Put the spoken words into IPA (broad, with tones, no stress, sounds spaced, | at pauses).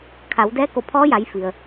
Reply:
kʰ a˩˧ w d ɛː˧˥ k o˧˩ pʰ ɔː˧˥ j a˩˧ j f i˩ ə̯